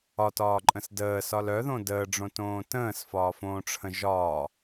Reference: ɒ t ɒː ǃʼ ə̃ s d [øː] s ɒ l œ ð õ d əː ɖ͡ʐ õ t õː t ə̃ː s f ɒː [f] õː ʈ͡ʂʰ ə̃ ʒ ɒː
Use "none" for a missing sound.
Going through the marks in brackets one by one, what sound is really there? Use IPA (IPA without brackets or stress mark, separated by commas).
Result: əː, f